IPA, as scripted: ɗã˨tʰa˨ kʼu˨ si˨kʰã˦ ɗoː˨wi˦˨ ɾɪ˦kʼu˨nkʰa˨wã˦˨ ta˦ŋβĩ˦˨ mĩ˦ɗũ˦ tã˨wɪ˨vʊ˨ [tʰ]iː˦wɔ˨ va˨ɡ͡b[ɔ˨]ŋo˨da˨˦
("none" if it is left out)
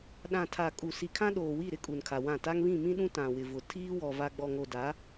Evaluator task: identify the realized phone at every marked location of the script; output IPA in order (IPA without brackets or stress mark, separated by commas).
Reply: tʰ, ɔ˨